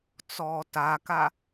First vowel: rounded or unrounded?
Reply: rounded